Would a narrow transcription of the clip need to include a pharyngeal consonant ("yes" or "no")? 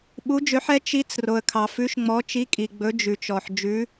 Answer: yes